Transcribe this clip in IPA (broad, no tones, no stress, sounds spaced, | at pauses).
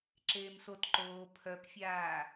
ǁ eː m s o t ǃ oː pʰ œ p fʲ aː